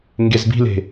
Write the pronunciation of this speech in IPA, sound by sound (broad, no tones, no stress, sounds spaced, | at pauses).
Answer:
ŋ ɡ e z b i̤ l e̤